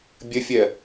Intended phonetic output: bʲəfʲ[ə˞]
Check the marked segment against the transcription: incorrect: ɜ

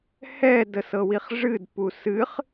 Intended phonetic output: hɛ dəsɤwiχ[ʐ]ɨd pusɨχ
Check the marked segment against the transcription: correct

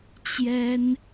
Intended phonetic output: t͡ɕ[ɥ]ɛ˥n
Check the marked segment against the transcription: incorrect: j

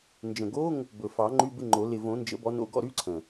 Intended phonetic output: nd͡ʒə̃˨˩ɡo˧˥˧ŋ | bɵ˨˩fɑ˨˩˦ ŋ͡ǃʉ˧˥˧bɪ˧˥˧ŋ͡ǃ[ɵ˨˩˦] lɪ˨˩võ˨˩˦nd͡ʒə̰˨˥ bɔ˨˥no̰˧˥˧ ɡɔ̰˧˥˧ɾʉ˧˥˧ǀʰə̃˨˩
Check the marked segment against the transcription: incorrect: o˨˩˦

